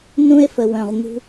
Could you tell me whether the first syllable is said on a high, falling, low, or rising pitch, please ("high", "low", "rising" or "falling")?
high